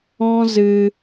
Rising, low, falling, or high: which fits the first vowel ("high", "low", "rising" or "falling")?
high